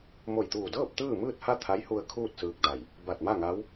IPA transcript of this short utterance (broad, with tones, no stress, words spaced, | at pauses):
mo˧˩jt̪uː˧˩dɤː˥˨p̚ t̪ɯː˥˨mɯː˥˨t̚ha˥˨ t̪ʰa˧˥jhu˧ə̯ kʰuː˥˨t̚sɯː˧k̚da˧˩j | ba˧˩t̚ma˥˨ŋa˧˥w